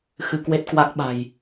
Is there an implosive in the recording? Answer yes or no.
yes